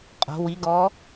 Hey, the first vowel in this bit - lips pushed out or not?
yes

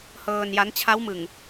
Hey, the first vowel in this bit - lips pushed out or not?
no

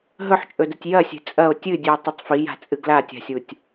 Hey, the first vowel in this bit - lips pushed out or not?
yes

